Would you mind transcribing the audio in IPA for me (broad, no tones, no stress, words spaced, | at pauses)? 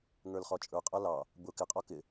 ŋə˞lχɔt͡ʃʼə˞ qʼʌlɑ | bʊ kɪqʼɔ kɪ